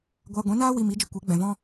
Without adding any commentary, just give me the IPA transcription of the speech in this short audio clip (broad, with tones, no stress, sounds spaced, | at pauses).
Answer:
ɡʷ aː˧ ɡʷ ɛ̃˨˦ n aː˦ w i˧ m i˨˦ d͡ʒ ə˧ kʷ e˨˦ ɡ͡b ɛ̃˨ v ɔ̃˦